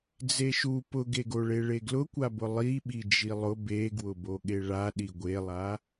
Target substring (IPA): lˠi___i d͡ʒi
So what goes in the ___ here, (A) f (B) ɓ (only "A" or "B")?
B